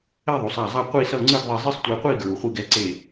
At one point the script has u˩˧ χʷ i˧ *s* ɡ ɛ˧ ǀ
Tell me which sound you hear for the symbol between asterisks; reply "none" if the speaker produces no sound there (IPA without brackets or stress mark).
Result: none